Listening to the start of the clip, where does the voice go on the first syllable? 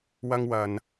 high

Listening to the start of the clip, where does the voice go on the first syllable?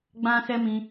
high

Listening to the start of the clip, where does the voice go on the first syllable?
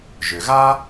low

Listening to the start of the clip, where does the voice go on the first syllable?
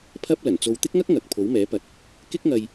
high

